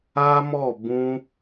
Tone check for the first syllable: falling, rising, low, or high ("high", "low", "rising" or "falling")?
high